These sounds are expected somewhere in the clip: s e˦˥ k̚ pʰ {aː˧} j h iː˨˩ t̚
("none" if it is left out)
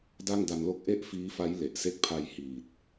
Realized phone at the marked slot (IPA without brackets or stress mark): a˧